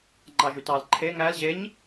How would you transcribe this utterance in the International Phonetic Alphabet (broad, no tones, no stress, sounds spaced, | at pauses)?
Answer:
ŋ͡ǃ ɑ ʒ y t ɑ l ǃʰ e ŋ æ l ʑ e ɲ